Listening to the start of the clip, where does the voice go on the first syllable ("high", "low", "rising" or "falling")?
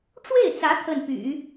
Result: falling